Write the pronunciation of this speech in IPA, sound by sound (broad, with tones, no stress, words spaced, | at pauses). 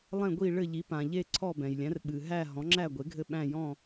lˠɛ̃˥˨ɡʷi˥˨ɭɘ˥˨ʎi˩˥ pã˩ʎe˥˨ ǀʰɔ˥˨bɛ̃˩jlʲæ̃˩˥r ɓɨ˩ɦæ˥˨ ɦɔ̃˩˥ŋ͡ǁæ˥˨ɡʷe˩˥ɡʱɘ˥˨ ɓæ̃˥˨jɔ̃˥˨